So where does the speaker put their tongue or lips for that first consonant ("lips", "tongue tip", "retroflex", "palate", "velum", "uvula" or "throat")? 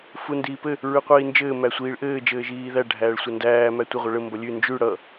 lips